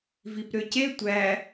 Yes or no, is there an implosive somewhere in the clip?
no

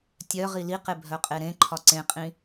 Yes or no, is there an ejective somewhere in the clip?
yes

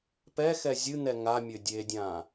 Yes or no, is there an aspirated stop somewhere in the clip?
no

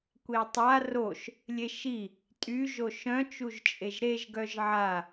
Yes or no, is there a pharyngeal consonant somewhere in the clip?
yes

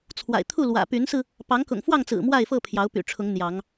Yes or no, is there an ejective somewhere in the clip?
no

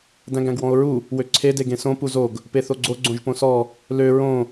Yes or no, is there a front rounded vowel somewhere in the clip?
yes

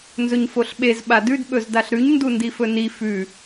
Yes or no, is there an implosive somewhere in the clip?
yes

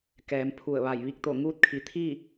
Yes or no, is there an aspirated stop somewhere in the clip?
yes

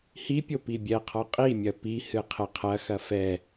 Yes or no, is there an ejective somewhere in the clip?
yes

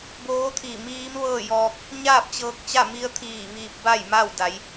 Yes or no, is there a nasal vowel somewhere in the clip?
no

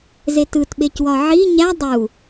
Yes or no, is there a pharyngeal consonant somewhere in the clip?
yes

